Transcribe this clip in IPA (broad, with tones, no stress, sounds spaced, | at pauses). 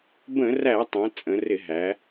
b ə̃˧˩˧ r æ˧˩˧ tˤ æ̃˩˧ t͡sʼ ə̃˩˧ r ɪ˧˩˧ ɦ æ˩˧